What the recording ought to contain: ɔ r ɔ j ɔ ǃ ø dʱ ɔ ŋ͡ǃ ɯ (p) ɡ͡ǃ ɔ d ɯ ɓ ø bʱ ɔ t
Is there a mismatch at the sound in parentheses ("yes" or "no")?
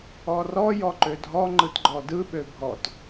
yes